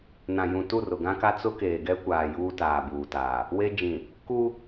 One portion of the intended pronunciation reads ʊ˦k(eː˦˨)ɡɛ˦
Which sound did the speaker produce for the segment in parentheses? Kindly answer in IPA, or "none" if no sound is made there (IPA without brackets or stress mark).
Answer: eː˨